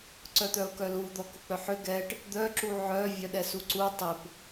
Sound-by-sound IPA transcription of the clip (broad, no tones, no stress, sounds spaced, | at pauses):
ǀ œ t̪ œ ʊ̯ k œ l u d̪ ɔ k ʊ k͡p œ ħ ʏ ɡ ɛ ʈ | d̪ œ ǁ u ʕ œ vʲ œ ɗ ɛ s u ǀ u tˤ ɪ p